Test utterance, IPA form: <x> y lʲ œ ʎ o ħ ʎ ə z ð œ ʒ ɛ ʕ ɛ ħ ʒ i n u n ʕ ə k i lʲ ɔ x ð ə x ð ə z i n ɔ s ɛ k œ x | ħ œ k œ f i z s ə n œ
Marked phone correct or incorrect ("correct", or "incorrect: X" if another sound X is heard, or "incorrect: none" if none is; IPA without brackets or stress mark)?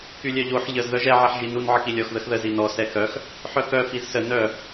incorrect: k